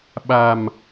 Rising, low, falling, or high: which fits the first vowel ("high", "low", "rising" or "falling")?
low